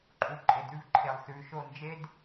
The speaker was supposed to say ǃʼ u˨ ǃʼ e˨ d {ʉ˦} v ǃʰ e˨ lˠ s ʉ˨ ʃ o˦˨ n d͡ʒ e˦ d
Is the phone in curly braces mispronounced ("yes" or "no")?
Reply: no